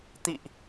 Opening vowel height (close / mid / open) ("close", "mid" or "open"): close